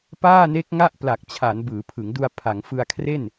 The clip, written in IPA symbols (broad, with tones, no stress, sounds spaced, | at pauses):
p aː˥˩ n e˦˥ k̚ ŋ a˥˩ ʔ p l a˨˩ k̚ t͡ɕʰ a˩˦ n b ɯː˩˦ pʰ ɯ˩˦ ŋ d u˧ a̯ pʰ a˩˦ ŋ f ɯ˧ a̯ kʰ r e˥˩ n